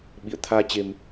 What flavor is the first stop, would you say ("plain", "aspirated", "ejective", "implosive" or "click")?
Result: implosive